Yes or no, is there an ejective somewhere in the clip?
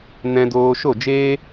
no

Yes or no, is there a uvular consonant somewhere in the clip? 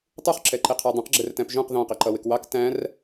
yes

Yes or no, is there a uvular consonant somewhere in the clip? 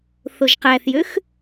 yes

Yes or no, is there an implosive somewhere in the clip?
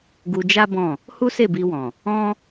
no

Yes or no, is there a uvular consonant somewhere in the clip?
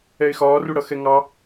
no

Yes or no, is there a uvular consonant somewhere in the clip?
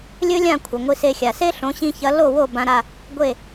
no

